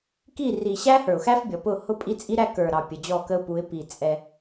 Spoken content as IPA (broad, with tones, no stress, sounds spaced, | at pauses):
k i˦˨ r i˨ ɕ æ˦ h ə˞˨ ʊ̯ x æ˦ f bʲ ɔ˨ p ʊ˦˨ h ʊ˦ pʼ i˦ t͡sʼ i˦ ɾ æ˦ k ə˞˨ ɾ ɑ˨ pʲ ə˨ d͡ʑ ɔ˦˨ k ə˦ ʊ̯ p u˨˦ ɪ̯ p i˨ t͡sʼ ɛ˦